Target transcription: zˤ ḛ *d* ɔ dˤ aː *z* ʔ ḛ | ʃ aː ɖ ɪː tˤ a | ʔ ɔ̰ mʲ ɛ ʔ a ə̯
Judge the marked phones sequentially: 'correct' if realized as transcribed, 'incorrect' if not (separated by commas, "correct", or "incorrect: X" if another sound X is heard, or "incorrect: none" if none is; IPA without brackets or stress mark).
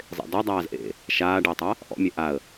correct, correct